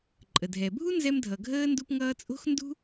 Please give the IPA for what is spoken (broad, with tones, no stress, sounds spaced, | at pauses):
ǃʼ ə˩ dʱ ɛ˩ bʱ u˥ n z ɛ˥ m dʱ ʌ˩ ɡʱ əː˥ n d u˥ p ŋ ʌː˥ t͡sʼ o̤˥ x n d ṳ˥